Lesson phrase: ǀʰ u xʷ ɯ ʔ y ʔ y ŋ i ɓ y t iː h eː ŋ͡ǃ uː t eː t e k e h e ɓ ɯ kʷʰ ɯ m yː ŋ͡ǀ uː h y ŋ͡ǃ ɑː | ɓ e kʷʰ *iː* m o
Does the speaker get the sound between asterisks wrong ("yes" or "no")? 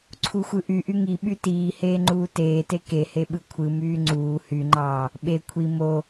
yes